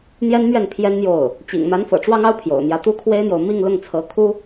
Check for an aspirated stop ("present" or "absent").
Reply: present